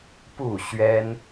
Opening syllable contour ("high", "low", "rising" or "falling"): falling